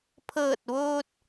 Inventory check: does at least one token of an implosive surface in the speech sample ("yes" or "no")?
no